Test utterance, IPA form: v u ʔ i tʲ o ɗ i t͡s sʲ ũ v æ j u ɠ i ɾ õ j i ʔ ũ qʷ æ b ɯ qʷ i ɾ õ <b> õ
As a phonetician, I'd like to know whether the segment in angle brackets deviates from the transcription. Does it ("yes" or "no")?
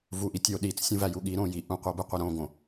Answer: yes